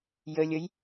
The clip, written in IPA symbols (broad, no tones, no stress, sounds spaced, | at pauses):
j ə lʲ ə j